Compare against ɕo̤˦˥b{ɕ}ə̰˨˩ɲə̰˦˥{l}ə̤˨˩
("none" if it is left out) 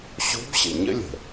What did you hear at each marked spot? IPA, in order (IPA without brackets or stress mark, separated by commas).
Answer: ɕ, lʲ